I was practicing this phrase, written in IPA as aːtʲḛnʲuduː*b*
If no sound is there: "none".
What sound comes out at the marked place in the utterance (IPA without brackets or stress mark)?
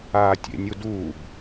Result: b